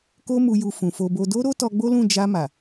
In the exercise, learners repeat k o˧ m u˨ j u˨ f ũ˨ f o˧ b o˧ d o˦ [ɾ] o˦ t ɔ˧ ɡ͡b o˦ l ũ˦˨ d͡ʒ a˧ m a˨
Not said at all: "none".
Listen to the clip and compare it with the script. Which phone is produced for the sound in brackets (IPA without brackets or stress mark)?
ɾ